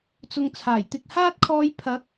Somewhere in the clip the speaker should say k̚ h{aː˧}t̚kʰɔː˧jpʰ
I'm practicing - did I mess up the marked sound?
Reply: yes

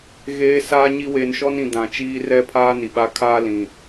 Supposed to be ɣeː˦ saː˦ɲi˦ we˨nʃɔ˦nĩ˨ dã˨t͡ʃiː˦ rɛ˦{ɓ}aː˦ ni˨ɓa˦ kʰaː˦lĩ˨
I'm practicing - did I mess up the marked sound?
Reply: yes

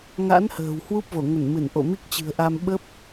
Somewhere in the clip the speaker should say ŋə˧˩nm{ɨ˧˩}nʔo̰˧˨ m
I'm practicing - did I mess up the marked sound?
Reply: no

